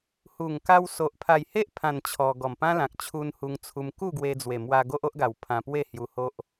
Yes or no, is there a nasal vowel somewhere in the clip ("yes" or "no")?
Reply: yes